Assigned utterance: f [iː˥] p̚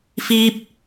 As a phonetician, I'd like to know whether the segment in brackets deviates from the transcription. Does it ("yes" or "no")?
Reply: no